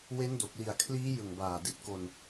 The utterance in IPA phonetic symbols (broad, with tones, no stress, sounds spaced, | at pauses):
w e˦˥ n d o˨˩ k̚ l i˨˩ a̯ kʰ l iː˦˥ j ɯ˨˩ ŋ b aː˨˩ d i˨˩ t̚ k o˧ n